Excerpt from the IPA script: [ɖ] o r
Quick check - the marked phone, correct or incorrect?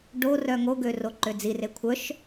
correct